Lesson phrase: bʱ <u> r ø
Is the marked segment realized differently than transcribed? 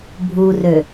no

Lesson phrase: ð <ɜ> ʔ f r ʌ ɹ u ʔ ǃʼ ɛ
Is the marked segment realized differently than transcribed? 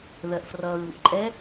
no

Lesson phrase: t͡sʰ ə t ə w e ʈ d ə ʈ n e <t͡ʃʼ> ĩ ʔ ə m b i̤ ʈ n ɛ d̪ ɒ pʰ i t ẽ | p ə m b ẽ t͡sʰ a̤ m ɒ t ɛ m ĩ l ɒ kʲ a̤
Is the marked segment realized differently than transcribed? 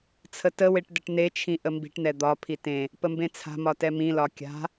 yes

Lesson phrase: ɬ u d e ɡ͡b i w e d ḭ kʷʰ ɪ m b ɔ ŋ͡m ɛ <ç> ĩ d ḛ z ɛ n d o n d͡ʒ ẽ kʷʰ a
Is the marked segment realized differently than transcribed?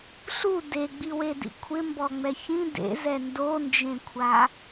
no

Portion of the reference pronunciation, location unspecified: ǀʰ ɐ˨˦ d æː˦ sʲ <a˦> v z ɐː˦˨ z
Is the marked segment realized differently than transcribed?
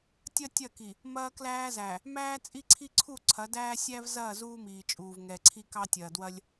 yes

